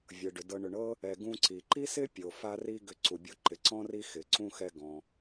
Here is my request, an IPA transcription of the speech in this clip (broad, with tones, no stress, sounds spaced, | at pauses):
vʲ ɤ˩ ɖ ʏ˩ d ɤ˨ ɳ ʏ˨ ɳ ɤ˥ | ɛ˨ ɡ ũ˦ ǀ i˩ ǃ i˥ s ɪ˥ pʲ o˩ f a˥ r i˥ ɡ ʏ˦ ǀ u˩ bʲ o˥ ǃ ɪ˩ ǀ ɔ̃˥ r i˦ x ɪ˩ ǀ ũ˥ x ɛ˦ ɡ ɔ̃˩